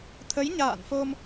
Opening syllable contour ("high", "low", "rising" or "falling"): rising